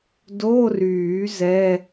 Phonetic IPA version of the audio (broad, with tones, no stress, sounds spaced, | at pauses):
d o˧˥˧ r yː˨˩˦ z ɛ˧˥˧